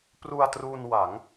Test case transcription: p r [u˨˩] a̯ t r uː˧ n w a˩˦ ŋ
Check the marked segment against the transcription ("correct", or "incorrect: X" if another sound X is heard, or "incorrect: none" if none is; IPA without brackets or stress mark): incorrect: u˧